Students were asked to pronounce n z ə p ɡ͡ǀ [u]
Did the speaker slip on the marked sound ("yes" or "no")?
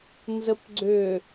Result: yes